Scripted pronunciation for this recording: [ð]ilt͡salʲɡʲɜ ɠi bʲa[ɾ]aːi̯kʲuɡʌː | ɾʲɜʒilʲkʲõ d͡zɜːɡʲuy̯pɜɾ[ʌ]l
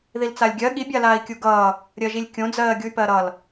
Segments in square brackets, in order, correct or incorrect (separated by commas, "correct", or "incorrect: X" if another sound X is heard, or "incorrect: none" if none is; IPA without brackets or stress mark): correct, incorrect: l, correct